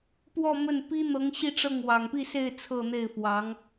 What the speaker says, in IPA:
p w ɔ˥˧ m ə˥˩ n p i˥ n̪ ɤ˧˥ ŋ ɕ i˥˧ ʈ͡ʂ ɤ˥˩ ŋ w ɑ˨˩ ŋ p i˥˧ s e˥˧ ɪ̯ t͡sʰ ɤ˥˧ n̪ e˥˩ ɪ̯ f w ɑ˧˥ ŋ

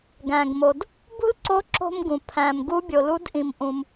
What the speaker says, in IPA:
ɡ æ̃˩ ɡ m o˩ d | b ṳ˥ l ǀ o˧˥ ǁ o̤˥ m ɡ ũ˩ pʰ æ̃˩ m ɡ u˧˥ bʲ o˩ l u˧˥ d ʔ ĩ˩ m ʔ ũ˩ m

